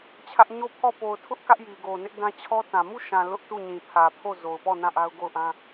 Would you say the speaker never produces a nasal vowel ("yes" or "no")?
no